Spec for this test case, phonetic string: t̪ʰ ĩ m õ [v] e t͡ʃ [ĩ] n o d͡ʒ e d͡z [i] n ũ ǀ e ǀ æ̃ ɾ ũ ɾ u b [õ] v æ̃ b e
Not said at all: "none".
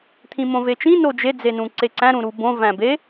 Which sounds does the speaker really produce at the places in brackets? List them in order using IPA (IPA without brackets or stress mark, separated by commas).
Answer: v, ĩ, e, õ